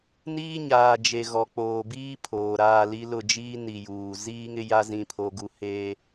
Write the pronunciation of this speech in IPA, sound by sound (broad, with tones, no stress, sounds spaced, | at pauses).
n iː˦ ɲ aː˨ d͡ʒ e˨ ɣ ɔ˨ k͡p oː˨ b iː˦ pʰ oː˨ ɾ aː˦˨ l i˦ l ʊ˦˨ d͡ʒ iː˦ n i˨ j uː˨ z iː˦ ŋ ɪ˦ j a˦ z ĩ˦ pʰ o˦ ɡ u˦ h eː˦